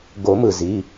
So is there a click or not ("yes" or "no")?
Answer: no